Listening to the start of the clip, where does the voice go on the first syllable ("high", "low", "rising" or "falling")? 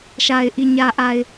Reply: low